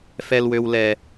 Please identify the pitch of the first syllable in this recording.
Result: low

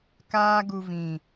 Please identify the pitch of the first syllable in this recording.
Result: high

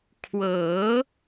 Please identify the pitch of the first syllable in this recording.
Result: rising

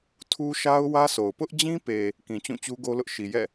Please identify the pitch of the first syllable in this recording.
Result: high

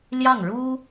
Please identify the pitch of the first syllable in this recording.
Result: falling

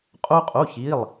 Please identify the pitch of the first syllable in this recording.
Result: high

